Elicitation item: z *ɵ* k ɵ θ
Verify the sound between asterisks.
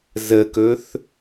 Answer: incorrect: ə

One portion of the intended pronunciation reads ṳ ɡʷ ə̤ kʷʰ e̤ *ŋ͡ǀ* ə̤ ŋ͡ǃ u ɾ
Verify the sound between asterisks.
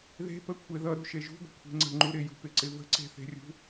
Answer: correct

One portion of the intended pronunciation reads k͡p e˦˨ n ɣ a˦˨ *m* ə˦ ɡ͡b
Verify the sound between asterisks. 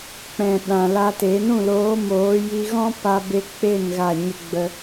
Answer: incorrect: ɲ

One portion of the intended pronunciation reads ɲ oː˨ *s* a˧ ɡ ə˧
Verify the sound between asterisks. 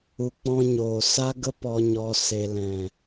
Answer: correct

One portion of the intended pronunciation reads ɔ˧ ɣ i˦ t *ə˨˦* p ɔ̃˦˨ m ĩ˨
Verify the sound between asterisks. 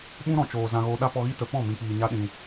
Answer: incorrect: ə˧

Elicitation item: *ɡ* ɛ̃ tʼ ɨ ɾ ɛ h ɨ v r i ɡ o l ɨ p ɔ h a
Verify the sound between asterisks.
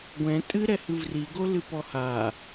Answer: incorrect: ɡʷ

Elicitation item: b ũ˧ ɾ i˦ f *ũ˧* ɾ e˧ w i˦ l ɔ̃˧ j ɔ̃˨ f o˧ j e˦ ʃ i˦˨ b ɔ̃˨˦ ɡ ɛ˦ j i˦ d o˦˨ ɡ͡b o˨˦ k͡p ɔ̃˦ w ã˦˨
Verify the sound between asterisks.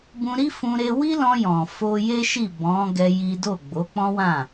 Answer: correct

